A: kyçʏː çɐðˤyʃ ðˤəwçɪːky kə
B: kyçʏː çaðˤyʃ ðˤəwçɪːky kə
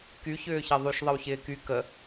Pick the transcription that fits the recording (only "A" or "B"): A